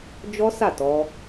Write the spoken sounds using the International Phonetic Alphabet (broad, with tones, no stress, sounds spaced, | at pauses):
d͡ʒ ɔ˦ s a˦˨ t ɔ˧